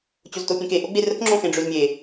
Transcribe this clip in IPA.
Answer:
t͡ɕ o z t o pʲ ẽ k e ʔ o ɡ͡b e r ə k ŋ͡ǁ õ x ẽ ɖ͡ʐ ø z mʲ e

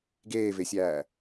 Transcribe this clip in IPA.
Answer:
ɡ eː v e sʲ æː

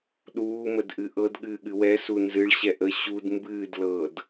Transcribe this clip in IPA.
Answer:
ɗ uː m ə d ʔ ɨ ʔ ɤ d ɠ ɨː ɠ ɨ w ɛ s u n z ɨ ɭ ɕ ɛ ʔ ə ɕ u d m b ɨː d l ɤː d

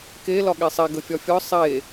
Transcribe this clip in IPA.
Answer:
k e l ɒ ɠ e sˤ e ɡ ə fʲ ɒ fʲ ɒ sˤ e

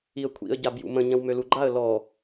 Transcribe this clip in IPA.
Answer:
i ə̯ kʷʰ ḭ ə̯ ɟ a b j ṵ m ə̃ ɲ ɐ̃ w m ø l u ɡ͡ǃ a ə̯ l ɔ

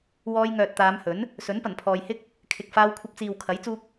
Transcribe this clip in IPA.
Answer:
w ɔː˧ j ŋ œː˨ t̚ t̪ aː˨˧ m h ɵ˨˥ n | s ɵ˨˥ n p ɐ˨˩ n pʰ ɔː˨ j h ɪ˥ k̚ | kʰ ɪ˨ k̚ f aː˧ w kʷʰ ɐ˧ p̚ t͡s iː˨ w kʰ ɐ˨˥ j t͡s uː˧ k̚

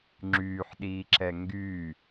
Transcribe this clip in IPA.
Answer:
ŋ͡ǁ yː ħ ɗ iː ǁ ɛ ŋ ɡ y

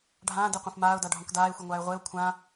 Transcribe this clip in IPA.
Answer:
ɖʱ ãː d e qʷ ã f m aː ʊ̯ d a ɖʱ õ k d aː ɪ̯ xʷ ɛ ŋʷ aː ɪ̯ ʁʷ e ʊ̯ kʷʰ ã

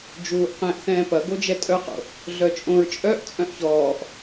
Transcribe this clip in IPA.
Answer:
d͡ʒ uː ʔ q ɛ̃ ʔ θ ɛ̃ː p ɐ ɡ o d͡ʒ ɛ tʼ œ q o̰ | ɮ œ t͡ʃʼ õ ɹ t͡ʃʼ œ ʔ t͡sʼ œ̃ ʔ ç ɔː ʔ

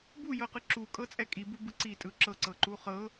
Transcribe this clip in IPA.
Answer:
b u j ɤ q ɯ ǁ u kʼ ɤ t͡sʼ ɛ kʼ i b u b ɯ ǀ i tʼ ɯ ǁ ɤ ǀ ɤ ǃ u χ ɤ

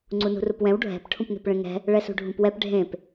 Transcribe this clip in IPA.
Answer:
ŋ͡ǀ u n ṳ r u p w ɛ̃ w ɖʱ ɛ̤ p ʈʰ ũ p n̪ e̤ p ɭ ẽ ŋ ɛ̤ | ɭ ɛ s ṳ ɖʱ ũ p w ɛ p ɖʱ ẽ p

